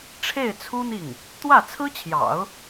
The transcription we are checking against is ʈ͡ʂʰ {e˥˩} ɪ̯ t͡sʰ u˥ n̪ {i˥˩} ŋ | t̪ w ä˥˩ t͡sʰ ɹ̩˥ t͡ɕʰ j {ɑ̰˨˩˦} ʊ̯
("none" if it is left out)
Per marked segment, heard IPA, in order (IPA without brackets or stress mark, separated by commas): e˥˩, i˥˩, ɑ̰˨˩˦